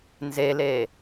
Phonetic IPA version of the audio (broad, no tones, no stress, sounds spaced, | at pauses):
n z e l e